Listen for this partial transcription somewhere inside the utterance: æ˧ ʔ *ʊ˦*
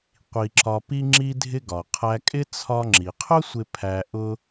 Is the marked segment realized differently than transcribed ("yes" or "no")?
no